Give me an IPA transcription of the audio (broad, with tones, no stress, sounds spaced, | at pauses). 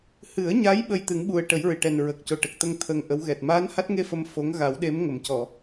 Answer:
h ɨ˨˩˦ ə̯ ɲ a˧˥ j ɓ ə˧ j t̪ ɨ˨˩˦ ŋ ɓ u˨˩ ə̯ ʈ ə˨˩˦ j ɹ ɨ˨˩ ʈ ɛ˨˩ n ɹ ə˨˩ k̚ c o˨˩ ʈ ə˨˩ k̚ t̪ ə˧ ŋ t̪ʰ ə˧ ŋ ʔ ə˧˥ w ɣ ɛ˨˩ t̚ m aː˧˥ n h a˦˥ t̚ ŋ e˧ f ə˨˩ m f o˧˥ ŋ ɣ a˨˩˦ w ɗ e˧˥ m ŋ ə˨˩˨ m c ɔ˨˩˨